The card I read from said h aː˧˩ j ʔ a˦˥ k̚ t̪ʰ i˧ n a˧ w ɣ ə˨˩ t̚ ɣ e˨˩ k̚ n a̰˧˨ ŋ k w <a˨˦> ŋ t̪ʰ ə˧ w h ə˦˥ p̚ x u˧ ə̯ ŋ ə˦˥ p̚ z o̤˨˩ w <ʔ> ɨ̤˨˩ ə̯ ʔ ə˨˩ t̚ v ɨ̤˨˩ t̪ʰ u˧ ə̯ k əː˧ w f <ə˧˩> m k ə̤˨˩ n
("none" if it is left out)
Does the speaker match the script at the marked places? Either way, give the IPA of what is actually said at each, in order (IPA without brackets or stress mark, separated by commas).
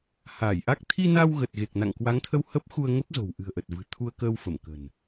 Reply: a˨˦, ʔ, ə˧˩